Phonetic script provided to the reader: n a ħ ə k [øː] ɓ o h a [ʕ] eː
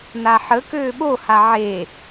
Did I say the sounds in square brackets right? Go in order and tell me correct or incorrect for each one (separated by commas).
correct, correct